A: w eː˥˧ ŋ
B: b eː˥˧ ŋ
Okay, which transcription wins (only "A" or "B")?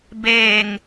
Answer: B